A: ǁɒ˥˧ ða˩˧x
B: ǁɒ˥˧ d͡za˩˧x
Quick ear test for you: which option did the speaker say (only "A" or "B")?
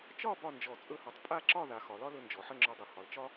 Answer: A